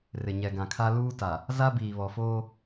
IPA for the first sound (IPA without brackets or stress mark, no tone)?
r